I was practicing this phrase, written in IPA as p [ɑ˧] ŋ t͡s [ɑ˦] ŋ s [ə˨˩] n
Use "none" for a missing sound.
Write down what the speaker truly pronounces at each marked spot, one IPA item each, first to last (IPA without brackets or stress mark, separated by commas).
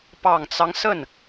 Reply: ɑ˨˩, ɑ˦, ə˥˩